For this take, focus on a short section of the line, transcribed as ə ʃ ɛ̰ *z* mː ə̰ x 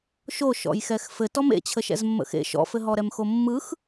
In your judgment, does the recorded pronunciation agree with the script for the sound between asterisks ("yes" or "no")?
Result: yes